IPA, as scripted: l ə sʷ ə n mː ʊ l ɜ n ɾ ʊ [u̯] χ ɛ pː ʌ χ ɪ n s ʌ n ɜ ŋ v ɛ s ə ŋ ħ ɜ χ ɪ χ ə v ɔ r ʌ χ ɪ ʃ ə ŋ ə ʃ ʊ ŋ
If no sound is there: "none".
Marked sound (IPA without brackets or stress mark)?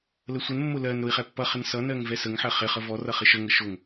i̯